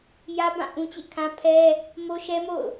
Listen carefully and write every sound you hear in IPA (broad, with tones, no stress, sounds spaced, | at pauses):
j ä˦ b ã˦˨ ʔ ũ˦ t͡ɕ ḛ˦˨ kʰ ã˦ pʰ ɛ˦ | m o˦ ʃ ɛ˦ m o̰˦˨ ʊ̯